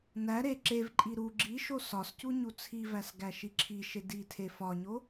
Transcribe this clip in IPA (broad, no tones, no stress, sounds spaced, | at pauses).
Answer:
n æ ɾ e ǁ e v ǃʼ i ɾ u ɡ͡ǁ i ʃ o s ɒ s c u ɲ u t͡sʰ i v æ s ɡ æ ʃ i ǁʰ i ʃ e d i tʰ e f ɒ ɲ o